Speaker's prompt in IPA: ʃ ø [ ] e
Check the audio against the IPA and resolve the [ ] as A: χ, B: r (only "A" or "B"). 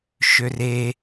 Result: B